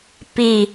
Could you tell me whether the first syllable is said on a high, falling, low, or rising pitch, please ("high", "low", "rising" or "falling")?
low